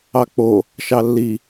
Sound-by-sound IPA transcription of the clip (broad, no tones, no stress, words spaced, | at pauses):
ɑk͡po | ʃɑlːi